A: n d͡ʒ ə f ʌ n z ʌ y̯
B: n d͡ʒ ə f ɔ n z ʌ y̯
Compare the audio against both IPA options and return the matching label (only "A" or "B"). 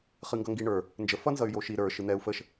A